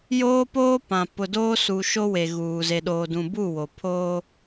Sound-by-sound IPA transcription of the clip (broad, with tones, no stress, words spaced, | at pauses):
joː˦poː˦pã˨ pʊ˨doː˦su˨ ʃo˦we˨ ɣuː˨ ze˨ɗoː˨dũ˨buː˦˨ wo˨pʰoː˦